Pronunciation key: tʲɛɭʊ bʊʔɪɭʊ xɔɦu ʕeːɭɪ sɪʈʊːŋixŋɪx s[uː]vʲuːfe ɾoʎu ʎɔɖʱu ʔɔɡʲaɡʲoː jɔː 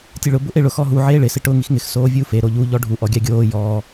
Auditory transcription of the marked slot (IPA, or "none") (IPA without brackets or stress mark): oː